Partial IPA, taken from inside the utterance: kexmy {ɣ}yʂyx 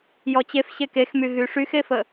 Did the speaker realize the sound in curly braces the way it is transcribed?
yes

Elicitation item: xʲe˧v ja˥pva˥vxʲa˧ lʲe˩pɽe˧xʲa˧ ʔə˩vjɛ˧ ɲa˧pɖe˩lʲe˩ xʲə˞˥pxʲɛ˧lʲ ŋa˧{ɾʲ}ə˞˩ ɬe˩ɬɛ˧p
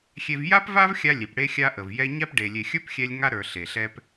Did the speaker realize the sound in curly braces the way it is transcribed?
no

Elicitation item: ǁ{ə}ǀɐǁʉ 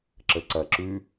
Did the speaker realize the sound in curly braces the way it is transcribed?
yes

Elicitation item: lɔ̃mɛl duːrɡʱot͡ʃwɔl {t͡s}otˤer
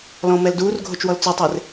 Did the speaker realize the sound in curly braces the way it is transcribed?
yes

